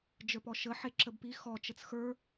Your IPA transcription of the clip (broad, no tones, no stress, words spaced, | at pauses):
d͡ʒə˞pɔʃə ħeǁəbpi xɔ t͡ʃət͡sxə˞